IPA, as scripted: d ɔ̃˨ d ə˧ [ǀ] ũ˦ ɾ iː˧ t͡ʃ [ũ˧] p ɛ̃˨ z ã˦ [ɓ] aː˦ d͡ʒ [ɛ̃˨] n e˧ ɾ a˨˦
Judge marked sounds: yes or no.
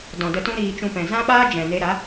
no, yes, yes, yes

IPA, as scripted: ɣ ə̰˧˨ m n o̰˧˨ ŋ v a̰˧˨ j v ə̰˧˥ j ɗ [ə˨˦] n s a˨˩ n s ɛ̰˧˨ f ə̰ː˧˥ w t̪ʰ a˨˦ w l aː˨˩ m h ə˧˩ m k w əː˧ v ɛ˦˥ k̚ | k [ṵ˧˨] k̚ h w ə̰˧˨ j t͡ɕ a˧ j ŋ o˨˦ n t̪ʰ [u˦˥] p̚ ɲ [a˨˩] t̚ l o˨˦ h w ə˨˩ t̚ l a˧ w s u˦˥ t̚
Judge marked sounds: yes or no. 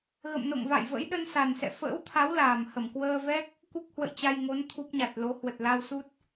no, no, yes, yes

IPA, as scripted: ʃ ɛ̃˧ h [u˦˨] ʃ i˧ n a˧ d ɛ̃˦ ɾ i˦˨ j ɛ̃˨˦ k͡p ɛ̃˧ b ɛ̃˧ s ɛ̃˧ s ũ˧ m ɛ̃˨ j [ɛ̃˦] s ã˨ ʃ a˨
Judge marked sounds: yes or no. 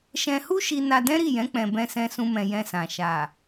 no, no

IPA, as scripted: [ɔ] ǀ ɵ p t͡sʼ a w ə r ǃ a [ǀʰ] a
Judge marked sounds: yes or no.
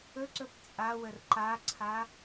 no, yes

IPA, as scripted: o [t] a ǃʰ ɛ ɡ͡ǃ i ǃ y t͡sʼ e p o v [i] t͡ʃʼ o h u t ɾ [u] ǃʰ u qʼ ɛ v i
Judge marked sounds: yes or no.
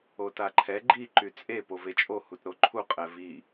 yes, no, no

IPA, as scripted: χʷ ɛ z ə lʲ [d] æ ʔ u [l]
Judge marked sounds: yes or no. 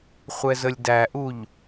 yes, no

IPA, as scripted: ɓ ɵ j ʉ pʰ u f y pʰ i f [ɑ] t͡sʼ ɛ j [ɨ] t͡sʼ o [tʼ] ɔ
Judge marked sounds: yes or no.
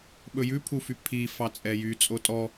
yes, no, yes

